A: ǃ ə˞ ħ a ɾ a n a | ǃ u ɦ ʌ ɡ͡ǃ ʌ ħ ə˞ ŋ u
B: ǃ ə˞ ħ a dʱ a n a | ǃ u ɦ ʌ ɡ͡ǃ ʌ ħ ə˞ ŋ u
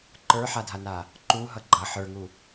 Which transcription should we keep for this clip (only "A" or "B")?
B